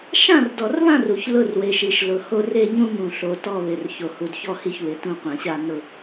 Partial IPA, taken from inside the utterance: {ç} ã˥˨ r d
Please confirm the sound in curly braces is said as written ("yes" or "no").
no